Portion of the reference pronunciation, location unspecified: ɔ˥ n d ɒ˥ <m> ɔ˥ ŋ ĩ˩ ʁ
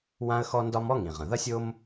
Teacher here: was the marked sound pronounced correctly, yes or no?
yes